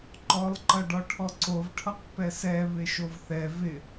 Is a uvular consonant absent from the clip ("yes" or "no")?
no